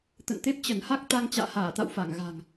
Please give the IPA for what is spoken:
t̪ ə̰˧˨ n t̪ e˦˥ p̚ t͡ɕ ə˧˩ n h a˦˥ k̚ t̪ a˧ ŋ t͡ɕ a̰ː˧˨ h aː˧˩ t̪ a̰˧˨ w f a˧˩ ŋ ɣ a̤˨˩ ŋ

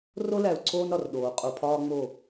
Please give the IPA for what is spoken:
r o˦ l æ˨ u̯ ǀʰ oː˦ n ɾ ɒ˨ r ɗ oː˨ qʼ o˨ pʰ ɒː˦ ŋ͡m o˦˨

